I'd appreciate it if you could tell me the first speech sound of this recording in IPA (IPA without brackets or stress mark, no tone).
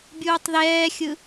bʲ